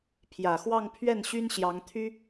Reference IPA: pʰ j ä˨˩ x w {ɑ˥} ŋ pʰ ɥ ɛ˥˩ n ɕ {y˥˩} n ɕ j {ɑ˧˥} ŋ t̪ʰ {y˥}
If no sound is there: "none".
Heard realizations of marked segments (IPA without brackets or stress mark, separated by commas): ɑ˥˧, y˥, ɑ˧˥, y˥